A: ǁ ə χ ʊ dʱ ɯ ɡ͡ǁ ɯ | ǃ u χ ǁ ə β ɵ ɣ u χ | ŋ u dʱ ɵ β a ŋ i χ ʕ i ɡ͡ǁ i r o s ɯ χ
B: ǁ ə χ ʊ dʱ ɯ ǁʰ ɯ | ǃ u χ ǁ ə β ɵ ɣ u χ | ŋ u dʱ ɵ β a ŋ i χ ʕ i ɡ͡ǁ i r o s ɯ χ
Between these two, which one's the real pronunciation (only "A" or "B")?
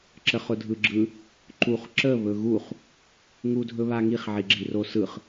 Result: A